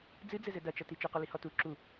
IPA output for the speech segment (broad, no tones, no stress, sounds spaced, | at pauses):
d͡z ɨ d͡z ɘ z ɘ d ɐ t͡ʃ ɐ t i t͡ʃ ɨ q ɔ l i h ɔ t u ǁ u